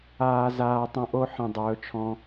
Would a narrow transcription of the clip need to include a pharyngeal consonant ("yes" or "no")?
yes